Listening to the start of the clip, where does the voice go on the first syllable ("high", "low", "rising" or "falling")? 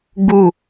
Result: falling